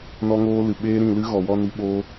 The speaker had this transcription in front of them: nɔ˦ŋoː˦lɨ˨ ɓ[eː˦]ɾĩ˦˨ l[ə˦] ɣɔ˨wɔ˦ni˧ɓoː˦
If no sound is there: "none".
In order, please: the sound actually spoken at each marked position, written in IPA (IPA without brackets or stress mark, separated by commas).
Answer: eː˦, ɨ˦